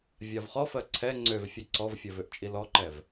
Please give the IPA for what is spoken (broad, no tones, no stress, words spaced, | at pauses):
vʲavχɔfɜ ǀʰɛ ŋ͡ǀøv fʲɛǀɔvfʲɜv øʔt͡ʃʼilɔǃɛv